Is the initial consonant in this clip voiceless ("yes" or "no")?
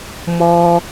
no